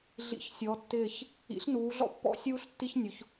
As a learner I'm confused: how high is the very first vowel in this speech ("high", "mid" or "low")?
high